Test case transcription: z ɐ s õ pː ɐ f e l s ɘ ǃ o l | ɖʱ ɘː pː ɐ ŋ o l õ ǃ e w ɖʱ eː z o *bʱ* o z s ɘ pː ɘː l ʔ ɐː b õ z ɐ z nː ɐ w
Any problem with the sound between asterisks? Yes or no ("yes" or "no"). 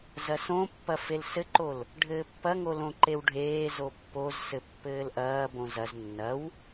yes